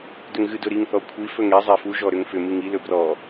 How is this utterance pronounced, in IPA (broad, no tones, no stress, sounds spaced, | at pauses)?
d ʏ ŋ ɣ ɨ d ɵ ɾ i ŋ θ ɔ kʷʰ i f ɵ ŋ e zˤ e f u ʒ ɔ ɾ ʏ ŋ f ʏ m ɨ ŋ i l ɵ b r ɔ